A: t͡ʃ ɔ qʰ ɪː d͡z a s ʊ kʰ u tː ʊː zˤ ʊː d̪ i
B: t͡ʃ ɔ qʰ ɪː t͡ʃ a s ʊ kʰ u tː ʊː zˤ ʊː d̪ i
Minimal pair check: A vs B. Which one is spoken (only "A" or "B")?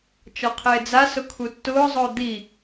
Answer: A